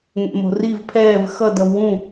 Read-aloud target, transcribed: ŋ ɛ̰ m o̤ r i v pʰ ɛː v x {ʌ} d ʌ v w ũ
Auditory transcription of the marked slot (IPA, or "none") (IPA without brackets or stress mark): ʌ